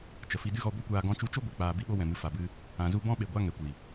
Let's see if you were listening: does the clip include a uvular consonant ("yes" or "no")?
no